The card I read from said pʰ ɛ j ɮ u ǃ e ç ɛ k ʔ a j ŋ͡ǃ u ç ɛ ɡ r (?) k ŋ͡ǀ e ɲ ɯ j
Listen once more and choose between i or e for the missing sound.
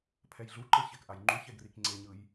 i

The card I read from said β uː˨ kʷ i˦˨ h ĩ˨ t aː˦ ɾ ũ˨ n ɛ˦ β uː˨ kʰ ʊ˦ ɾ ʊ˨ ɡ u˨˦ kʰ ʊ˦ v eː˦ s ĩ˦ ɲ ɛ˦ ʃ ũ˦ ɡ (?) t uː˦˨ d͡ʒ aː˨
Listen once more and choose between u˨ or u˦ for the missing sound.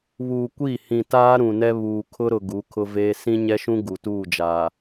u˨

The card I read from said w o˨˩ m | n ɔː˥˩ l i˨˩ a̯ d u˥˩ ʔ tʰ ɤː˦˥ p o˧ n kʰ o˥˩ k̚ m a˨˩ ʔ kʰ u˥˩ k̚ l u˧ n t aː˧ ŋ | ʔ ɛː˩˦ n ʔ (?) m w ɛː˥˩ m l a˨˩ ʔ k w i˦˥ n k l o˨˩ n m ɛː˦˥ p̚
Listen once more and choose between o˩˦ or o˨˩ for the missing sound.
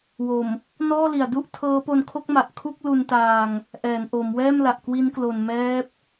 o˩˦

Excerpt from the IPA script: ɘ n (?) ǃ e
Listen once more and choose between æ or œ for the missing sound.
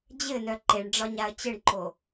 œ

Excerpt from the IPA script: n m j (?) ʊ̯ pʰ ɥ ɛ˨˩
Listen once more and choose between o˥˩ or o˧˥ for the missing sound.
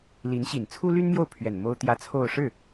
o˥˩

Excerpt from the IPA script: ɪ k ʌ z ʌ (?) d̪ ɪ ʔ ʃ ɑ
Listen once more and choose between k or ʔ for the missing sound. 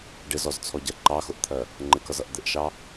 ʔ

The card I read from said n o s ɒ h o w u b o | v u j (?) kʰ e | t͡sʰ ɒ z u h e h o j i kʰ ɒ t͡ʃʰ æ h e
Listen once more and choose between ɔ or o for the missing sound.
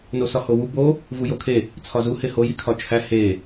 o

